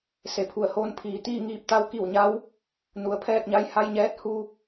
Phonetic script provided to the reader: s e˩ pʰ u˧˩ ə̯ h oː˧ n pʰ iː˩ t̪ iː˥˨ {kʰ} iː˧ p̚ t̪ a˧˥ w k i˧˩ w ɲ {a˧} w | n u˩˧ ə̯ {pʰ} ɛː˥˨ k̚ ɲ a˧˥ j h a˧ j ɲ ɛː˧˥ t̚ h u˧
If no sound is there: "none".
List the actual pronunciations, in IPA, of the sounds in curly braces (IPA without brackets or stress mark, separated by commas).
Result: ŋ, a˧˥, pʰ